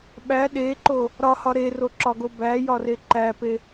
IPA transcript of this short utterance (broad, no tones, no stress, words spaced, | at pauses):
ɓæ ɗeǃo | ɾɒhɒ ɾeroǁɒɡo bæjɒre ǃæpe